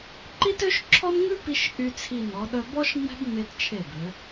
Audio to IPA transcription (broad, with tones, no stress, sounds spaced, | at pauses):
ǃ i˥ t ø˥ ʃ ǁʰ ɔ˥ n ŋ ʉ˥ p i˧ ʃ ʔ y˧ t͡sʰ i˧˩ n ɔ˩˧ ɗ œ˧ b ɔ˥ ʃ ŋ͡m ɛ̤˥ b ŋ͡m e˧ t t͡ʃʰ e˧˩ b ø˩˧